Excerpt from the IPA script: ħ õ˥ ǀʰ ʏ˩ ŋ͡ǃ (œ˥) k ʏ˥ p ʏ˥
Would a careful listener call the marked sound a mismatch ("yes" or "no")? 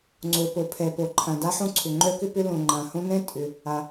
no